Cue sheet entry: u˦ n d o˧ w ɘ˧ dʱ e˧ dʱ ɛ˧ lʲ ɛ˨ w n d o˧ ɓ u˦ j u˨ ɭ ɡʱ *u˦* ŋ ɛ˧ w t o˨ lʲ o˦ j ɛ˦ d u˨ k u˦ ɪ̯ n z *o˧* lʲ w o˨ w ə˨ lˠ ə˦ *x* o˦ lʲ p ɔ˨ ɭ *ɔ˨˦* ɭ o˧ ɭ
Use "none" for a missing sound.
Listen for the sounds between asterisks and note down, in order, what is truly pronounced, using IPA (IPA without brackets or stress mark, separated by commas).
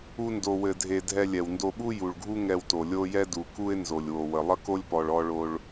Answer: u˦, o˨, k, ɔ˧